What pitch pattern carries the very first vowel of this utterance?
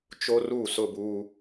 high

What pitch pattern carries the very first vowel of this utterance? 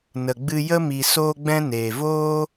low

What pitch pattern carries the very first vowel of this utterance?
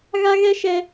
high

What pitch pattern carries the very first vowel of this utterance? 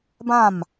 falling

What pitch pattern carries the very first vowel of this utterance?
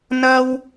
high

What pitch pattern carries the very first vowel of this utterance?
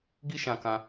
high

